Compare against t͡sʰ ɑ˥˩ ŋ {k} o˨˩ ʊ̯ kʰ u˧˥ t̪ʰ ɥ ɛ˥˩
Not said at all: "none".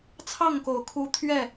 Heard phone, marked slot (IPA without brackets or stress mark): k